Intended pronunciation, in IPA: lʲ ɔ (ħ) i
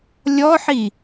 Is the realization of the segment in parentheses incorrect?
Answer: no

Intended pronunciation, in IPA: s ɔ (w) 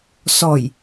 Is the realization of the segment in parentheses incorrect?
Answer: yes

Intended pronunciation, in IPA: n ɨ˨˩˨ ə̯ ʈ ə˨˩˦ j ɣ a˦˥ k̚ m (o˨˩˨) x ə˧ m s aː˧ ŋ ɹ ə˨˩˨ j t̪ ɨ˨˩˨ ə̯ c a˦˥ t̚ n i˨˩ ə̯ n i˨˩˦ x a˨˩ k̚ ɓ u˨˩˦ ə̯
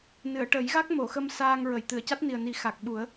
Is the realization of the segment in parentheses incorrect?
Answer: no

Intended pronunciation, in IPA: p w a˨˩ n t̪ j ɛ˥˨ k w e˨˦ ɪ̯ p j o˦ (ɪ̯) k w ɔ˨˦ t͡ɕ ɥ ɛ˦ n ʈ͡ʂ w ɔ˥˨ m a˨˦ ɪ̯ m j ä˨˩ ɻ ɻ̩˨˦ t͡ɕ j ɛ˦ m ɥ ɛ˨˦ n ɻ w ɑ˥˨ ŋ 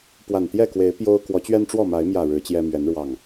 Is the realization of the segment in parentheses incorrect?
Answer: yes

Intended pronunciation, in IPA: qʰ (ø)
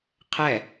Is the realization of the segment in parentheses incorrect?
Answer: yes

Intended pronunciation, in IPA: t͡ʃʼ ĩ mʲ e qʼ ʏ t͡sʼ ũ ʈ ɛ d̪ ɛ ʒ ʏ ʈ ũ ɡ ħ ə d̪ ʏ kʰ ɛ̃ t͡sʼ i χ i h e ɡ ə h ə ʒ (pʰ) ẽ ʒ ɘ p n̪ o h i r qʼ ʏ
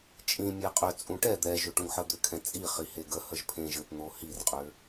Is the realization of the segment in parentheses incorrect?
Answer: no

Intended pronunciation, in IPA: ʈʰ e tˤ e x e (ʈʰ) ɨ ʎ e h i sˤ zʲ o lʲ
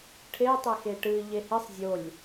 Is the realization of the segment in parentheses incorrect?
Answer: yes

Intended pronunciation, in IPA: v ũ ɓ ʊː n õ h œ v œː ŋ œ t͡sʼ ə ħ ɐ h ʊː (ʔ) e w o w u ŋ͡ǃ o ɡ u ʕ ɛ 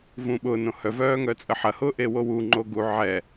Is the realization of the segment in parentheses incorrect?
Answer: no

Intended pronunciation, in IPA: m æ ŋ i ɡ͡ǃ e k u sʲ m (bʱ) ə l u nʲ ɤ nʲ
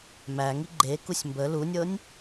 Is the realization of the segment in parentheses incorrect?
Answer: yes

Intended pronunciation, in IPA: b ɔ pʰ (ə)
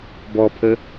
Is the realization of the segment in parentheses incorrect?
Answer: no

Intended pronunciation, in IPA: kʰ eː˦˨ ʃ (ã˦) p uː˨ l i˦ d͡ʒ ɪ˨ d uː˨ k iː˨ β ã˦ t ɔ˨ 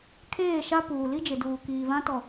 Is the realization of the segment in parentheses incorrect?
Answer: yes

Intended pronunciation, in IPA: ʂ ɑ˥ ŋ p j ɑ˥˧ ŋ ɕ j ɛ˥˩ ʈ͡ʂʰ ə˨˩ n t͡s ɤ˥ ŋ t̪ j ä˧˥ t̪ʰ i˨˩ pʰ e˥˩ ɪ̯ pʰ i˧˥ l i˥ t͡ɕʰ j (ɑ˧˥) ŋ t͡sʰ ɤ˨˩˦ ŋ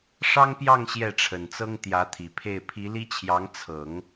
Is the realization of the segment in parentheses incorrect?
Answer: no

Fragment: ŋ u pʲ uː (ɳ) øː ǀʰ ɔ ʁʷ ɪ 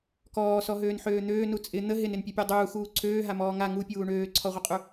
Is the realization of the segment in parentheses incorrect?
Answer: no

